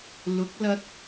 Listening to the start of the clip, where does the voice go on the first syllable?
rising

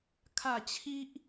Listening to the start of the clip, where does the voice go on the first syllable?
falling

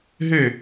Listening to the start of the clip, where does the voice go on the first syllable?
falling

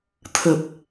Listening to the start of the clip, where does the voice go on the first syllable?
low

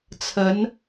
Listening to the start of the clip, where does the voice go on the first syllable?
rising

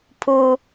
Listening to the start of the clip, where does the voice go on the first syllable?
high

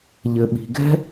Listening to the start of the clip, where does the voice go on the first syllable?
low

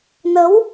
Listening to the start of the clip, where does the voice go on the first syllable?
rising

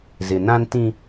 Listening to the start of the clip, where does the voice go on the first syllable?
low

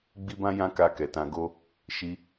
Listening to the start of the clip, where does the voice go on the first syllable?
high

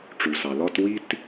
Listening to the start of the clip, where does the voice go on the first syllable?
low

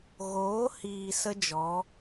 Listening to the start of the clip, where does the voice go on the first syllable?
rising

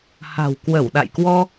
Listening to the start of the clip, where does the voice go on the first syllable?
low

